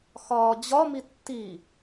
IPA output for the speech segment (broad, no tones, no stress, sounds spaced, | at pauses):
x ɒː d͡ʑ ɒ m i tː i